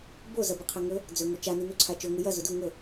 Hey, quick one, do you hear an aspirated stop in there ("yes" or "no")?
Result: yes